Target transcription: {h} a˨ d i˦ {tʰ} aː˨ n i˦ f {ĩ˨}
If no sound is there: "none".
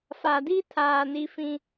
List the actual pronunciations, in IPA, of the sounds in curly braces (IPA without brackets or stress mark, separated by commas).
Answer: f, tʰ, ĩ˦